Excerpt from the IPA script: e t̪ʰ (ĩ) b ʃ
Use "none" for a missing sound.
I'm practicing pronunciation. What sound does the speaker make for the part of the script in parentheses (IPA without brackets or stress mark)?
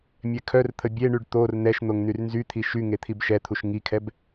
i